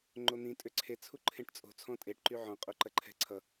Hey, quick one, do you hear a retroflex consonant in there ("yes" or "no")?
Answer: yes